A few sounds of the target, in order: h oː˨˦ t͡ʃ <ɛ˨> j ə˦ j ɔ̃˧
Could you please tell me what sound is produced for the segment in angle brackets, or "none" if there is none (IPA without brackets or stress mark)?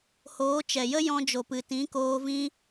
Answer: ɛ˨